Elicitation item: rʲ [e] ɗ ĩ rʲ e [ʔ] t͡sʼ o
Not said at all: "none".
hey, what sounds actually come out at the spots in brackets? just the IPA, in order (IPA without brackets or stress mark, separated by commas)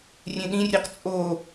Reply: ẽ, q